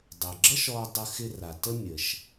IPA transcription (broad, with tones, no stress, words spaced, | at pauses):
dˤɘ˩ɡ͡ǁʌ˥ʃ ɔ˧dˤə˧xɪ˧ ra˩ tə˥ mʲə˩ʃ